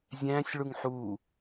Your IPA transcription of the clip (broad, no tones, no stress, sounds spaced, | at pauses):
zʲ æ̃ː sʲ ɭ u ŋ ħ u